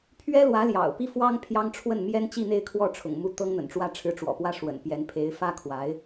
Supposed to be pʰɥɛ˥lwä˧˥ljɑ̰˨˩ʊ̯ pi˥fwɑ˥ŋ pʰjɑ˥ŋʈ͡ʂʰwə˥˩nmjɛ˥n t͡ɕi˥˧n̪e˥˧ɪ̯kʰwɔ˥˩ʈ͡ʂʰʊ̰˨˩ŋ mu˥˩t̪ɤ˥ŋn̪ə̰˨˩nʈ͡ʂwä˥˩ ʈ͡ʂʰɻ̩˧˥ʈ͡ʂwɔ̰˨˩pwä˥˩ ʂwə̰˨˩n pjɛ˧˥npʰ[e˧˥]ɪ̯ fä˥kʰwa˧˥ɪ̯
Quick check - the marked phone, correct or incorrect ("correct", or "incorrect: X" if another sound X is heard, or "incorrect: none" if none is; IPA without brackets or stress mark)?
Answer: correct